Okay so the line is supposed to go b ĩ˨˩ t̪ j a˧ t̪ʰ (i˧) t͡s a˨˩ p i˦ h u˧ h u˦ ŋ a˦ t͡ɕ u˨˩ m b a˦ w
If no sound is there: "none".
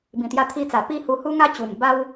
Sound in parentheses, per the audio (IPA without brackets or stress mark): i˧